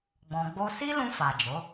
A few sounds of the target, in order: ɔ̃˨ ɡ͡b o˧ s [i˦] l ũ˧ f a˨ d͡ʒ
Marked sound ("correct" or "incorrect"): correct